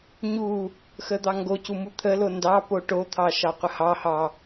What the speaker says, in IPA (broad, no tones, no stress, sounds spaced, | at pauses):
ɲ u | x ə d̪ ɑ ŋ ɡ o c u m u t̪ʰ ə l o n d ɑ p o ʈ o t̪ʰ ɑ ʃ ɑ qʷ ə h ɑ h ɑ